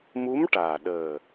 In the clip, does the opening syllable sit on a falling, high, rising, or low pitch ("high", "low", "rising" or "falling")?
rising